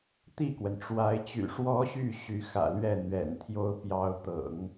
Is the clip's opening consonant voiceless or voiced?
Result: voiceless